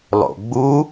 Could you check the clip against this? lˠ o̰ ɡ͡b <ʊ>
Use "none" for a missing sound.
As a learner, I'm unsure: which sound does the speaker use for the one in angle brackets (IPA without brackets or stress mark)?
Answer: u